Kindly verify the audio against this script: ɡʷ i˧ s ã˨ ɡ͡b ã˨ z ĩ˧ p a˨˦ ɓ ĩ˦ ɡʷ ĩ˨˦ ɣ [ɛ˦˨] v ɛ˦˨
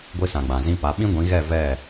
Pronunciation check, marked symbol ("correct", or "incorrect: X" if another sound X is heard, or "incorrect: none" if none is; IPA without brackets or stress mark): correct